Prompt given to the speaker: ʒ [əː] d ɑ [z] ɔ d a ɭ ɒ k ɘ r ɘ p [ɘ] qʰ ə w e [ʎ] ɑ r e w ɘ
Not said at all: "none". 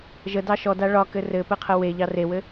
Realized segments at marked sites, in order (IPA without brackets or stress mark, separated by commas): ə, ʃ, ɘ, ʎ